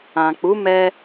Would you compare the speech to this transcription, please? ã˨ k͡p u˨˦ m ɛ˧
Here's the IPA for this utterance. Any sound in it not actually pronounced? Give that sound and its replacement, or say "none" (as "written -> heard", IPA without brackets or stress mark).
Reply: none